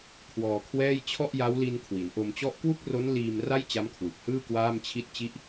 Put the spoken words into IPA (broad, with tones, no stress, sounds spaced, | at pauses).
kʰ w ɔː˧ kʰ w ɛː˥˩ j t͡ɕʰ ɔ˥˩ ʔ j a˦˥ w l i˧ n kʰ w i˩˦ n ʔ o˧ m t͡ɕ ɔ˥˩ ʔ k w u˥˩ k̚ r o˦˥ n l iː˧ m r a˥˩ j t͡ɕ a˦˥ m kʰ w ɯ˨˩ k̚ h ɯː˥˩ k w aː˥˩ m t͡ɕʰ i˥˩ t̚ t͡ɕ i˥˩ ʔ